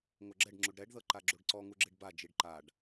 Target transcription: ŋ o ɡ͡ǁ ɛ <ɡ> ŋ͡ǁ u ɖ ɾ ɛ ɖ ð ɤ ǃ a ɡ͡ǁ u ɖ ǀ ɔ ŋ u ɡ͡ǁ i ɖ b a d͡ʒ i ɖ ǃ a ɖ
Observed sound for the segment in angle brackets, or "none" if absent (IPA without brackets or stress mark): ɖ